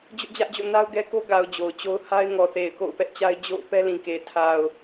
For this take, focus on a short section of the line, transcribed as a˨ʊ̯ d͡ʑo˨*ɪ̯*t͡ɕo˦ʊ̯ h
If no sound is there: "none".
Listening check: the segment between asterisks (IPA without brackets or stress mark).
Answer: ʊ̯